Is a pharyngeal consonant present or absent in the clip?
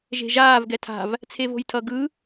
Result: absent